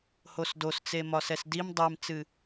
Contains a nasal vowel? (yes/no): no